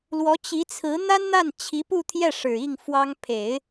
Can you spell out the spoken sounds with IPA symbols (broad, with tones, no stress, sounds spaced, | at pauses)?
l w ɔ˧˥ t͡ɕ i˧˥ t͡sʰ ɹ̩˧˥ n̪ a˥ n n̪ a˥˩ n t͡ɕʰ i˧˥ p u˥˧ t̪ʰ j ɛ˥˩ ʂ ɻ̩˨˩ i˥˩ ŋ f w ɑ˥ ŋ pʰ e˨˩˦ ɪ̯